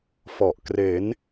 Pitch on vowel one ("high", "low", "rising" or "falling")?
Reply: low